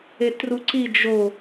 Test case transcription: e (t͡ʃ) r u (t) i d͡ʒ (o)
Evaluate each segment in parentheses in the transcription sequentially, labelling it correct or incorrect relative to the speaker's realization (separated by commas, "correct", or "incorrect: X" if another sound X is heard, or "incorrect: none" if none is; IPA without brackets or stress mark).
incorrect: t, incorrect: ǀ, correct